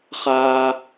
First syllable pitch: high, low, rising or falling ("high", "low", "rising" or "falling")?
high